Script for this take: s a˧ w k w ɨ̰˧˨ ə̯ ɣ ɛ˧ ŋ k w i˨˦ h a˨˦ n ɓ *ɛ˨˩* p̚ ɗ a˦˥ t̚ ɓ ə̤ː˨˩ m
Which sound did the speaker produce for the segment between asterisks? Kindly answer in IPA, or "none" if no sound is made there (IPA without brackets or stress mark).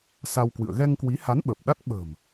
ə˨˩